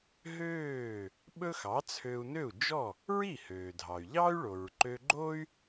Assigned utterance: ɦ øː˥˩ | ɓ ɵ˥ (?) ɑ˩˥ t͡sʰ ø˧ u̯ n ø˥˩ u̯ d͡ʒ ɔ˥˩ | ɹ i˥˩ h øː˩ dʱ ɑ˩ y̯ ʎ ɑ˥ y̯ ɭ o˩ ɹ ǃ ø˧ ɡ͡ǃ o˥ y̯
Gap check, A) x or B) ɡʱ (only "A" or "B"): A